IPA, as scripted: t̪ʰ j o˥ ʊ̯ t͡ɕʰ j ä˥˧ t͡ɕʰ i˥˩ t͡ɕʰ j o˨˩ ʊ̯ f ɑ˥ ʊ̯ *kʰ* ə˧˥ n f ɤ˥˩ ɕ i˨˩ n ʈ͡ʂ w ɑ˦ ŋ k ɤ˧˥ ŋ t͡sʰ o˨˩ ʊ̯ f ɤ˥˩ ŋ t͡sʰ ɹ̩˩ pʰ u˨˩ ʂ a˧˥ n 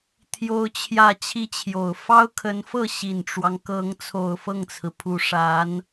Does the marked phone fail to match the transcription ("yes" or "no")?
no